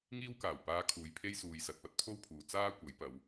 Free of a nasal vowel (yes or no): yes